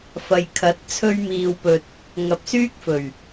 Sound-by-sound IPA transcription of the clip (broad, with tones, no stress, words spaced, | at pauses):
fɐ˨jkʰɐ˨˥t̚ t͡sʰɵ˥ɥmiː˧wpɵ˧t̚ | ŋɐ˨p̚syː˥k̚fɵ˨˩ɥ